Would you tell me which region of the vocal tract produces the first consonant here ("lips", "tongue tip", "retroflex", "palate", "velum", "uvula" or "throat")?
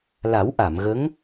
tongue tip